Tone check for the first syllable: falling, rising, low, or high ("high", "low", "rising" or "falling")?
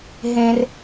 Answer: high